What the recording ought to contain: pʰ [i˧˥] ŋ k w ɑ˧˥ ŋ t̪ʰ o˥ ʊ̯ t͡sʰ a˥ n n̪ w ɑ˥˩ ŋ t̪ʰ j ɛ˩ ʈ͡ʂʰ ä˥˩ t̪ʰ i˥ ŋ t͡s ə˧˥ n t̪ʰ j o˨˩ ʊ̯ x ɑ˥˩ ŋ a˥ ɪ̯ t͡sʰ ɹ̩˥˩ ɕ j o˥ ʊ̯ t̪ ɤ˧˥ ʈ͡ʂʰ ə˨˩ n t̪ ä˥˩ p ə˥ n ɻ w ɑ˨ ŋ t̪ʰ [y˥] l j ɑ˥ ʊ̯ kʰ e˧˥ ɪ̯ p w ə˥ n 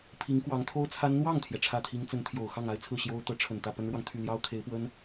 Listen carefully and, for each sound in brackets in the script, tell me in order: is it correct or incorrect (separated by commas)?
correct, incorrect